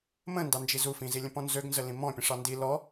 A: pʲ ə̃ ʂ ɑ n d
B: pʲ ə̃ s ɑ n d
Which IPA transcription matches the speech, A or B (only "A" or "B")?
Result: A